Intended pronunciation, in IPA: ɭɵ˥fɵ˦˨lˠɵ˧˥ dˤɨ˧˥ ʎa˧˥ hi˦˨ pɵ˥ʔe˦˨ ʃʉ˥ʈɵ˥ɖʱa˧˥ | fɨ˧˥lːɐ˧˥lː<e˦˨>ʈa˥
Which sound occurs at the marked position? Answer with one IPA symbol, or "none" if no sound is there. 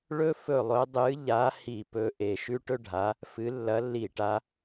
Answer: i˦˨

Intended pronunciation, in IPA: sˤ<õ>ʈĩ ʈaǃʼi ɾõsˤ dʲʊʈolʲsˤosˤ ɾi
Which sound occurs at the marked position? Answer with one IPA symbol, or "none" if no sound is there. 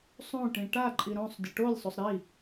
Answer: õ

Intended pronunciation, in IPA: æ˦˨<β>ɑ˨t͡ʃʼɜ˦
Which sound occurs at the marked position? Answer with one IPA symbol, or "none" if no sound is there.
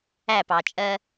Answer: p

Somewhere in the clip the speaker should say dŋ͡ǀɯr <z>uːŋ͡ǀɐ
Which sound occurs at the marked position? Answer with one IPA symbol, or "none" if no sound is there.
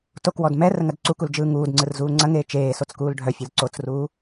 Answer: z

